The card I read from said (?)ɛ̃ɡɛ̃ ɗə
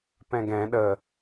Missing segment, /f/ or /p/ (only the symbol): p